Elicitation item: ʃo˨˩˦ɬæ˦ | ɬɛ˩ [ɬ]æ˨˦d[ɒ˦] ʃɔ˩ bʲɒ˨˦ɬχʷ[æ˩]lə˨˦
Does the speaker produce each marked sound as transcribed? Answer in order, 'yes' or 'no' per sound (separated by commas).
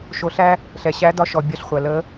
no, no, yes